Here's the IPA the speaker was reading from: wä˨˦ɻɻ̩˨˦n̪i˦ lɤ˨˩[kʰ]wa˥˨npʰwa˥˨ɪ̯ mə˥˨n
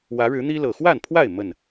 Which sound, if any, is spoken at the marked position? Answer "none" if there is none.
x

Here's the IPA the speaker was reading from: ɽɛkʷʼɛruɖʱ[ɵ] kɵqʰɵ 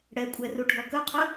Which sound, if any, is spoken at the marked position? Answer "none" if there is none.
ɔ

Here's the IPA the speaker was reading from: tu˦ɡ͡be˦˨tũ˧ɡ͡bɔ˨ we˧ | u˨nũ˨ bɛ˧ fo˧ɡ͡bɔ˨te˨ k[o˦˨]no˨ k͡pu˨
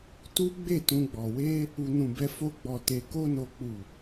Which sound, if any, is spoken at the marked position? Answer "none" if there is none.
o˧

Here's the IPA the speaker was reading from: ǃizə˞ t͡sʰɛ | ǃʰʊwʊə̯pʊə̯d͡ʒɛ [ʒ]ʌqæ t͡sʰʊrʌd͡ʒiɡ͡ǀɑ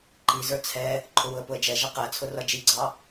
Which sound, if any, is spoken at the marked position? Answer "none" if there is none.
ʒ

